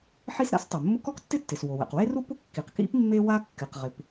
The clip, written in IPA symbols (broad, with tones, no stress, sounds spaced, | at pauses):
ħ i˥ s ɾ a̰˥ s tˤ u˩ mː ʊ˥ k ɔ˥ k tː ɪ˥ tː ɪ˩ s w o˩ w ɛ̰˩ q w e˥ r u˥ p ʊ˥ kː i˩ q k ḭ˥ p mː e˥ w a˥ kː ɪ˩ q ʁ ɪ˩ p